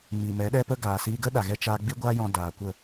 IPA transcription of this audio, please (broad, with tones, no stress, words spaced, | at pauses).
mi˨mɛ˨˦ɗɛ˦pə˦ ɡaː˨siː˧ɡə˦ ɗa˨ɣɛ˧t͡ʃaː˧ ɡ͡bi˦ɡʷaː˦jɔ̃˧ daː˨kʷə˦˨